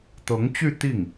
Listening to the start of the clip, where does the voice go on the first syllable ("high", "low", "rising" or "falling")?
rising